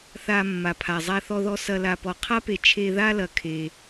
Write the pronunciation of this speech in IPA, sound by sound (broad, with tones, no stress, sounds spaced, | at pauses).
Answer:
θ a˨ mː a˨ pʰ a˨ zˤ a˨ θ ɔ˨ ð ɔ˨ s ɐ˨ l a˨ p ɔ˨ qʰ a˦ p e˨ t͡ʃʰ e˨ ð a˦ l ɐ˨ kʰ e˦